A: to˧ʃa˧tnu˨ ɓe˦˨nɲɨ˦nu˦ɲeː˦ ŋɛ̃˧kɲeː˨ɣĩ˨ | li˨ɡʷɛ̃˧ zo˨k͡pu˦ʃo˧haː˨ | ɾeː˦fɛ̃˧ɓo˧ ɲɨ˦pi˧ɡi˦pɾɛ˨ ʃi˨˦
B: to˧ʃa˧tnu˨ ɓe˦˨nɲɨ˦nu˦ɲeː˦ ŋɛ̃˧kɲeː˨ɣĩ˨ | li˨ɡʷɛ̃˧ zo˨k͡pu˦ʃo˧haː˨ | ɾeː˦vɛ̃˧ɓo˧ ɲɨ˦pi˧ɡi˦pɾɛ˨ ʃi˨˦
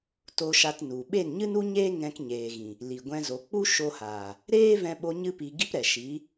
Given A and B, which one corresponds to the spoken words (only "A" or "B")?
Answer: B